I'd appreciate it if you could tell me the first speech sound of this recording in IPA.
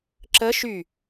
ǁ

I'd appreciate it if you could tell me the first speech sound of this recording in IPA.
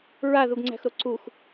ɹ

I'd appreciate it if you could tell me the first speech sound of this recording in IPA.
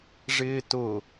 ʐ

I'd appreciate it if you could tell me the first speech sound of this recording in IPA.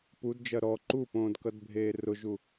p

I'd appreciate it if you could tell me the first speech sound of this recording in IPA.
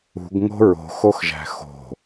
ṳ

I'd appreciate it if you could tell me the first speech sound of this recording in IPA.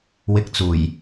w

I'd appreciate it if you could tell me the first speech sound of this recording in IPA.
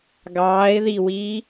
ɡ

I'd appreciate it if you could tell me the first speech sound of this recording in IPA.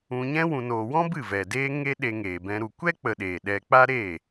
ũ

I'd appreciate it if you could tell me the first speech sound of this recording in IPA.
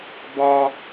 b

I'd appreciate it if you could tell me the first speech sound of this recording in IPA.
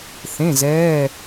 θ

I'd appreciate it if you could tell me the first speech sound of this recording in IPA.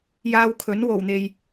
j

